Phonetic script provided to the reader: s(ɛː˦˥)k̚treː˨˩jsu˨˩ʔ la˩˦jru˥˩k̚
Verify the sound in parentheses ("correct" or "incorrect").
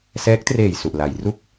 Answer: correct